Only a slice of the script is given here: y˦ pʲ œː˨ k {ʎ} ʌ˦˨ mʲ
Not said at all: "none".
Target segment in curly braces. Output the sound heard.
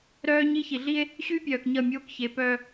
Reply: ɲ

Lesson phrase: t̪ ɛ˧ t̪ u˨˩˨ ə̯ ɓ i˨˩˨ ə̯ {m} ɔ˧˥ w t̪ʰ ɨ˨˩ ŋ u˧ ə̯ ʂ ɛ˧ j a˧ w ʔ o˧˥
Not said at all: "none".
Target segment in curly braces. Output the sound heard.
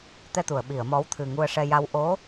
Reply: m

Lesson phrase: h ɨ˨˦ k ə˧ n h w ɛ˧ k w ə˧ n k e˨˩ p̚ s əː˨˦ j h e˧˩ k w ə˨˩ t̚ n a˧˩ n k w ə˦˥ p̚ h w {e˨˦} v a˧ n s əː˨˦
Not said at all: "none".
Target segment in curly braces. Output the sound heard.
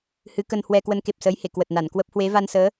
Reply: e˨˦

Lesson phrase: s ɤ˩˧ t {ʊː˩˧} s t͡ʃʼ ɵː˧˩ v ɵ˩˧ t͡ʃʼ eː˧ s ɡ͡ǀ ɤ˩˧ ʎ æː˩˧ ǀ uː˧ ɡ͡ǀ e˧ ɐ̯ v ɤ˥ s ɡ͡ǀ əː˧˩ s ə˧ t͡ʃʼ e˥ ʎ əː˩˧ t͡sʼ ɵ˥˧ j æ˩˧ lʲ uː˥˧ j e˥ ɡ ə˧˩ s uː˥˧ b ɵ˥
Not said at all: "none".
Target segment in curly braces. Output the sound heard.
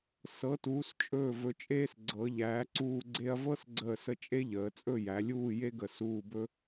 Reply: uː˩˧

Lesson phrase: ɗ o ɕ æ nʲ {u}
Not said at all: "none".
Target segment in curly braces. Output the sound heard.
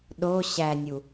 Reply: u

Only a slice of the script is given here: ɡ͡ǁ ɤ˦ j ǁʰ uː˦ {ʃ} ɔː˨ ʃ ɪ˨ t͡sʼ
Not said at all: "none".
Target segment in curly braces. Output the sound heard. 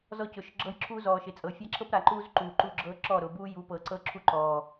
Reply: z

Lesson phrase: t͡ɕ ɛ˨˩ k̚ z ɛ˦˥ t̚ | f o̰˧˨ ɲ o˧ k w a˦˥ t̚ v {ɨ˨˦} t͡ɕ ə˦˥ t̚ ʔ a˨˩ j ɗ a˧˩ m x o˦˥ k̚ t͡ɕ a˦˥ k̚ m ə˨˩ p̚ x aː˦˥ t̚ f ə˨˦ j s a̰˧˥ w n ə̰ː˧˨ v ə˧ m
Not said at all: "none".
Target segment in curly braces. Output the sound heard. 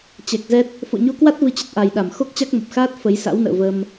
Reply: ɨ˧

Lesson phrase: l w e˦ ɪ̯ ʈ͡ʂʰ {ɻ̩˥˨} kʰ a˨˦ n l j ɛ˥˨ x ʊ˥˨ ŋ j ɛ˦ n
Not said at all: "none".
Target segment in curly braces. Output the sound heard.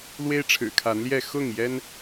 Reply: ɻ̩˨˩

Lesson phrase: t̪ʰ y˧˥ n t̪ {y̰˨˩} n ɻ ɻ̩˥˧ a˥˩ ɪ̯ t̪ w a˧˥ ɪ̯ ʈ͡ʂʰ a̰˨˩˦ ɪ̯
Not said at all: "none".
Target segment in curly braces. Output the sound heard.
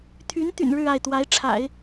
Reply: y̰˨˩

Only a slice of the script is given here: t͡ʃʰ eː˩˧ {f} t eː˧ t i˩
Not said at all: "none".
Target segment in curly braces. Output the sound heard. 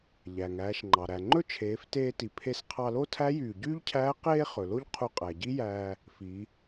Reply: f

